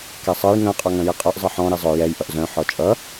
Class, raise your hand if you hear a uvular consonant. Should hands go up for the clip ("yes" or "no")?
yes